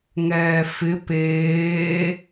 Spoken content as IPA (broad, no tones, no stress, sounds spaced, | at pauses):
ŋ ɛː f ɪ p eː